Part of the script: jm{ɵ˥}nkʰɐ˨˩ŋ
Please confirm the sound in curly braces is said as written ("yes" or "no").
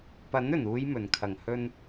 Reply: no